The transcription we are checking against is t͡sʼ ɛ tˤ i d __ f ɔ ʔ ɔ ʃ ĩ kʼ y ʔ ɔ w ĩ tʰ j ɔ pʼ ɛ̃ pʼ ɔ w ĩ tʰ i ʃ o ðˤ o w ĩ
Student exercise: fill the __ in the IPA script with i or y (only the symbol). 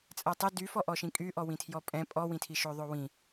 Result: y